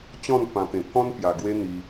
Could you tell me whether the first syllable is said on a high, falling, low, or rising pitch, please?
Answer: falling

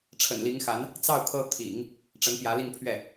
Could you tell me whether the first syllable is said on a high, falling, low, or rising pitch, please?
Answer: low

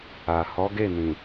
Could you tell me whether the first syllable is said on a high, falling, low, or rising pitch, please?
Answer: low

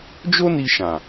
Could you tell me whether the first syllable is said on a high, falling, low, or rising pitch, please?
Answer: high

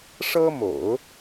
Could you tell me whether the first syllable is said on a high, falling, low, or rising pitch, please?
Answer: high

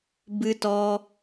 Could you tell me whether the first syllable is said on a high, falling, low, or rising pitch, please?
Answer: high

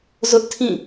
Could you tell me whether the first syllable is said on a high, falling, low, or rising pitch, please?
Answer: high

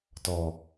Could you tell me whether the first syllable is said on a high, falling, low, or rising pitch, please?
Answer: low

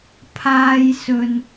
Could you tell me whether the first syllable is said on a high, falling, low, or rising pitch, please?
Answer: high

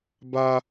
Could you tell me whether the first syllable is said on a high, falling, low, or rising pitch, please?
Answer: high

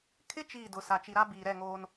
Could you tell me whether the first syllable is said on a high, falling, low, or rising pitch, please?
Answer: high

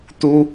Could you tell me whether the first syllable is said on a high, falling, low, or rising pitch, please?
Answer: high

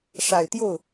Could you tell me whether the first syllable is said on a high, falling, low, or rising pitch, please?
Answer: low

